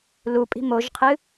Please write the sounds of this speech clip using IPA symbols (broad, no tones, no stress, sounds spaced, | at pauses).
l u pʼ i̤ m o ʒ qʰ ɨ